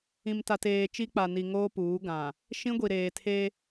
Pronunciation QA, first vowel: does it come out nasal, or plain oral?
nasal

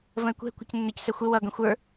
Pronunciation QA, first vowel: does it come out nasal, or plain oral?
nasal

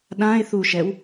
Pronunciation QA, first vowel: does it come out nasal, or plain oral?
nasal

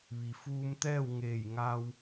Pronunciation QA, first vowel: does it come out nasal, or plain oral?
oral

